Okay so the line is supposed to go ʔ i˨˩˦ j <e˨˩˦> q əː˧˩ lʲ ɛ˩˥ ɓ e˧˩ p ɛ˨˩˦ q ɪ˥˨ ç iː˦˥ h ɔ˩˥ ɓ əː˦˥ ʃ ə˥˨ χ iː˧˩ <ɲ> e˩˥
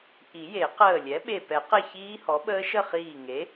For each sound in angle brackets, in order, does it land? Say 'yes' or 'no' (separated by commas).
yes, no